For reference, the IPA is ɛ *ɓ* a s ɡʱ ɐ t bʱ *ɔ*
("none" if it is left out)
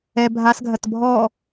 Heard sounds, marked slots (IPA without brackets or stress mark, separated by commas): bʱ, ɔ